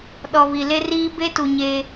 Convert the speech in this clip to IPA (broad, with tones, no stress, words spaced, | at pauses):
ɗɔ˨ βi˨le˦riː˦ be˦tu˨ ɲe˦